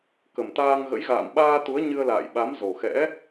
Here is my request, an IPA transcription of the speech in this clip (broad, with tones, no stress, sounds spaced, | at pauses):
k ə˨˩ m t̪ aː˧ ŋ ɣ ə̰˧˥ j ɣ a̰ː˧˨ m ɓ aː˧ t̪ u˨˦ ə̯ ɲ ɨ˧ ə̯ l a̰ː˧˨ j ɓ a˨˦ m z o˨˩ x ɛ̰˧˥